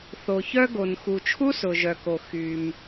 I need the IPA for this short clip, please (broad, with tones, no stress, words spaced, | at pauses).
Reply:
θo˩çœ˥ ɡo˩nxu˩ t͡ʃʰu˥sʊ˩ʒœ˩ko˩ xy˩m